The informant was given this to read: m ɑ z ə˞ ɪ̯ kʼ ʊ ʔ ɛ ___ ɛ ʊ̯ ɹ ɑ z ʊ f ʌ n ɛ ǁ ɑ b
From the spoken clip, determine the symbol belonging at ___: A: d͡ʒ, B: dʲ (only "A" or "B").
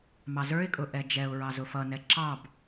A